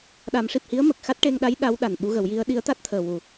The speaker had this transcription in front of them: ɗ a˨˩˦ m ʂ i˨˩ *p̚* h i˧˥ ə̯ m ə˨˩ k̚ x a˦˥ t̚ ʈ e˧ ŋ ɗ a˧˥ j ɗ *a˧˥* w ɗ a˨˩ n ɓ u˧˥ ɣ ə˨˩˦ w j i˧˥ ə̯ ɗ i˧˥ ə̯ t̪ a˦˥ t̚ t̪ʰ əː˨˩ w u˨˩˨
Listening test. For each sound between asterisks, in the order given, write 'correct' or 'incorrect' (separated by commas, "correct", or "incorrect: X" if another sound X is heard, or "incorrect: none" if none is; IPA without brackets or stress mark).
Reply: correct, correct